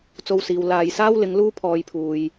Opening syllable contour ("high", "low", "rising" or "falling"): high